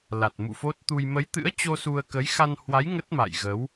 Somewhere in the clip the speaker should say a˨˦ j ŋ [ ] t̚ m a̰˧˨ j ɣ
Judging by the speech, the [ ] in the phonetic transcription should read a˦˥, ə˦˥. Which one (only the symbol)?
ə˦˥